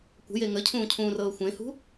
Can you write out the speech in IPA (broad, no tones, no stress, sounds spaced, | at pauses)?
kʷ ə̤ j e ŋ ə cʰ ũː cʰ ũː r ɤː xʷ ẽ h ṳ